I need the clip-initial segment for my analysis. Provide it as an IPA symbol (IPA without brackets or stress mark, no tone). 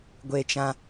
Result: ɡʷ